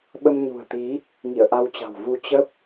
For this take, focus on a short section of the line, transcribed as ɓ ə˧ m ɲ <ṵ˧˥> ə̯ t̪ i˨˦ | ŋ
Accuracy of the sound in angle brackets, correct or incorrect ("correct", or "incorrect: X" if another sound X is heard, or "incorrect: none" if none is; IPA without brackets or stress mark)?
incorrect: ṳ˨˩